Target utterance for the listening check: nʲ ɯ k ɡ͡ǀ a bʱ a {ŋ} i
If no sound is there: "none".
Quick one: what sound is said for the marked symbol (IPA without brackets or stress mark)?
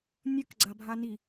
n